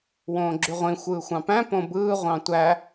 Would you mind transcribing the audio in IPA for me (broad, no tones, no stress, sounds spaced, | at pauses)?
w õː ɡ͡ǁ y ʁʷ ĩ xʷ ɯː xʷ ɑ̃ p æ̃ p õ b ɯː ʁʷ ɑ̃ tʷ æ